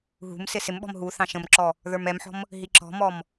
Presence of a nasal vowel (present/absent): present